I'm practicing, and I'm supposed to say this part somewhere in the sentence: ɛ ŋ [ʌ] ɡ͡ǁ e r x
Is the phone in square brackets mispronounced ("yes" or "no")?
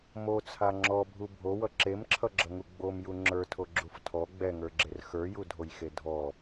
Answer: yes